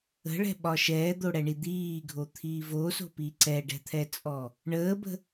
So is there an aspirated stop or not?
yes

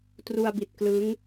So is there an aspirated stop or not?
no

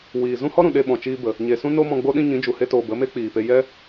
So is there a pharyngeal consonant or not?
no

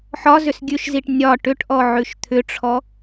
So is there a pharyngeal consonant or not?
yes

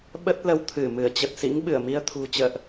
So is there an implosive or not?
yes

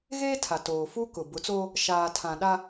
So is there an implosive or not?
yes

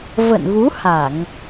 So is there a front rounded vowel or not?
no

